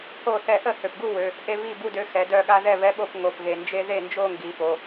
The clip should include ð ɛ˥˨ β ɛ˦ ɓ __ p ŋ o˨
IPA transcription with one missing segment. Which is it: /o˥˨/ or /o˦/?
o˥˨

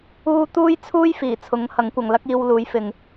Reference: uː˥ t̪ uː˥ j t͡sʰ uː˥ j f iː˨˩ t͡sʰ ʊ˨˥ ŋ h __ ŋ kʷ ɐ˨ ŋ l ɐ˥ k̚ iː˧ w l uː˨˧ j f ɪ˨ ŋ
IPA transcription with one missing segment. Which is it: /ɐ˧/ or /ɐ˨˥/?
ɐ˨˥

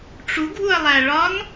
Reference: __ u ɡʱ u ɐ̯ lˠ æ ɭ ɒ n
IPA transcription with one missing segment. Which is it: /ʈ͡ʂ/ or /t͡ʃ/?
ʈ͡ʂ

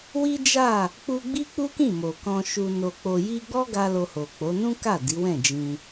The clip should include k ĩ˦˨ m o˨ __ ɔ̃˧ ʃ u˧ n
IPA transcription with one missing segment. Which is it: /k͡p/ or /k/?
k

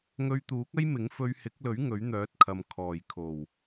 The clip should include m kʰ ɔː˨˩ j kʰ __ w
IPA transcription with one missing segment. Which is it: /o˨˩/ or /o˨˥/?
o˨˩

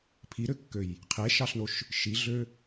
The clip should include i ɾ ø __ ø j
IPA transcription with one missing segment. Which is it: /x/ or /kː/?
kː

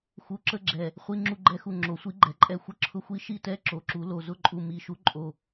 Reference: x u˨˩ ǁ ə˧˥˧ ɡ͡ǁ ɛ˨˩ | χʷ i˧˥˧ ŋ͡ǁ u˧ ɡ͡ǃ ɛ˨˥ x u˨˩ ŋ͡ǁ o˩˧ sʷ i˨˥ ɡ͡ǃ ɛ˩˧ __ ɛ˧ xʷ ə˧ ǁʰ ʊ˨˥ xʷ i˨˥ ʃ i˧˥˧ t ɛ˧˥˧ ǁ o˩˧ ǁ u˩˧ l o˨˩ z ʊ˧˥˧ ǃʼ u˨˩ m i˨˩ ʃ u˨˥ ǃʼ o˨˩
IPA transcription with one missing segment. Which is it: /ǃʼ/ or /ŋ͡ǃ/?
ǃʼ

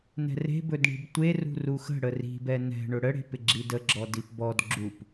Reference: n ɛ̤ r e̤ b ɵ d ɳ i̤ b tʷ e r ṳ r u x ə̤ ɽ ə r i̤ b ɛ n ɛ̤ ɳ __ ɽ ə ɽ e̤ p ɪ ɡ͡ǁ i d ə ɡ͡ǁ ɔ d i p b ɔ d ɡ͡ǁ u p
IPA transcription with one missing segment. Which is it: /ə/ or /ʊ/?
ʊ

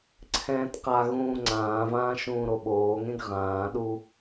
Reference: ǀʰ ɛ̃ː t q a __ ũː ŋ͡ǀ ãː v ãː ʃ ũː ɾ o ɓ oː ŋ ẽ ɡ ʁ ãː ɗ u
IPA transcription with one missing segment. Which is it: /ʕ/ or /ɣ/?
ɣ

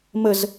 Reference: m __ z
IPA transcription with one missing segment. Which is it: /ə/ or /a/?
ə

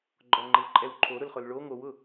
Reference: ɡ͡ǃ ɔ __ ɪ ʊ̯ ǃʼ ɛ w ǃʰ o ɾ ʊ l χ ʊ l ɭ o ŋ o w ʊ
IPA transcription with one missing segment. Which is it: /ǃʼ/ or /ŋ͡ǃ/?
ŋ͡ǃ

